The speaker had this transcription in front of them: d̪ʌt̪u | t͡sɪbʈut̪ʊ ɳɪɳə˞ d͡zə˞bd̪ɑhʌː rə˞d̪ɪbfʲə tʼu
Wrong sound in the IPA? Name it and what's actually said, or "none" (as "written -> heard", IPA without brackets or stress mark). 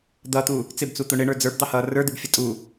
ʈ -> t͡s